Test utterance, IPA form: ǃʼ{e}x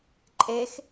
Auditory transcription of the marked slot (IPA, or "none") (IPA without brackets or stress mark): e